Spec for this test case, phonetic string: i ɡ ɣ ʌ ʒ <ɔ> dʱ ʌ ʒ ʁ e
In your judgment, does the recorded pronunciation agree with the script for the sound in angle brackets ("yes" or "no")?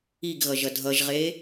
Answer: no